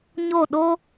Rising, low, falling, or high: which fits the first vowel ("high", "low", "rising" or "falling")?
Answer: falling